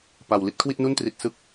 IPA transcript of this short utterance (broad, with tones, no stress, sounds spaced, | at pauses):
p a˨˩ w l i˥˩ t̚ kʰ w i˥˩ t̚ n u˥˩ n t r i˨˩ t̚ s ɯ˦˥ k̚